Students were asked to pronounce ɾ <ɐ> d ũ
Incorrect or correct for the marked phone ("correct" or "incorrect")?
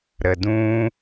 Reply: incorrect